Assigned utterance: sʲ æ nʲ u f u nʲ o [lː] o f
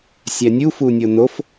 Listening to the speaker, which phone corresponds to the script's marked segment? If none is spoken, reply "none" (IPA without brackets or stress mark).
n